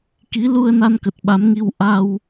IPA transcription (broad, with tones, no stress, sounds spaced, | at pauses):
k i˨˦ l u˧ ə̯ n a˧ n k ə˨˩ t̚ ɓ a˨˦ m ŋ i˧ w ʔ a˧ w